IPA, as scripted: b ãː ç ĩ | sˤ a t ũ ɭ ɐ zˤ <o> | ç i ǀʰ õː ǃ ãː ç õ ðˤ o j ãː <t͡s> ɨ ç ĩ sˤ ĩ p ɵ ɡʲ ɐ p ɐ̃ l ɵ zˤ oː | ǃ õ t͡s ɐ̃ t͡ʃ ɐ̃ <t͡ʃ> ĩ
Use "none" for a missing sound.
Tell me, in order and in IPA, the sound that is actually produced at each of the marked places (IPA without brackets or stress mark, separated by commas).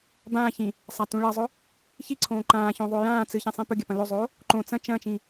ɵ, t͡s, t͡ʃ